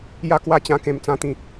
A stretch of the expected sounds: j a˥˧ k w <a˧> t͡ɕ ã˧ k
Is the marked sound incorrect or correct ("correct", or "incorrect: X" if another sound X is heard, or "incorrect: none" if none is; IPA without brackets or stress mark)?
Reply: incorrect: a˦